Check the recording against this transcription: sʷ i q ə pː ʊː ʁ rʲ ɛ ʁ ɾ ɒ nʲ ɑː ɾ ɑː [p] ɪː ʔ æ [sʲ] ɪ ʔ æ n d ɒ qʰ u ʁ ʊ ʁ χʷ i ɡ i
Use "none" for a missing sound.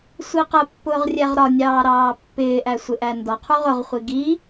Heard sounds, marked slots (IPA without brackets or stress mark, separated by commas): pː, sʷ